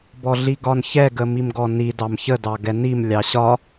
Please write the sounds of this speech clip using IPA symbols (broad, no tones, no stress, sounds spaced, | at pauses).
b ɔ ɮ i ɡ ɒ n ç ɛ ɡ ə m i m ɡ ɔ n i d ɑ m ç ə d ɑ ɡ ɛ n i m lʲ ɑ ɕ ɒ